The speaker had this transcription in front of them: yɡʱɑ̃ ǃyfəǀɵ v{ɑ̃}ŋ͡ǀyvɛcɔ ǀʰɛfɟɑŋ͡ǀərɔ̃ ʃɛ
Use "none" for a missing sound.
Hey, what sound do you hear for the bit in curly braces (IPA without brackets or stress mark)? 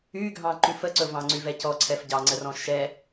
ɑ̃